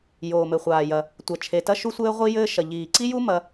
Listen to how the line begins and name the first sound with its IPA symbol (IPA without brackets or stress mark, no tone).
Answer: j